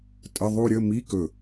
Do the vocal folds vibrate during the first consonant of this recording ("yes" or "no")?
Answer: no